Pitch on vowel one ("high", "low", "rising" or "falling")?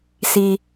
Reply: high